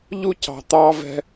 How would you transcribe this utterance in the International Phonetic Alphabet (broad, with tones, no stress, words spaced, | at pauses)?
ʎu˦cɑ̤˨ t̪ɑː˧vɛ̤˧